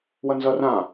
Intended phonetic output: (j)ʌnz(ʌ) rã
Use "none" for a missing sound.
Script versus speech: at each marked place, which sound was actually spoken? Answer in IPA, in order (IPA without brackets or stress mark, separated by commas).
w, ʌ